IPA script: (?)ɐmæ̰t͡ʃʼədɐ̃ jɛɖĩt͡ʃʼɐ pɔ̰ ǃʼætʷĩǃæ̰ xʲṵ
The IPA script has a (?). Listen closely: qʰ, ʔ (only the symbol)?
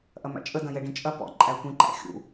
ʔ